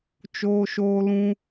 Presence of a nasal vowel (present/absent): present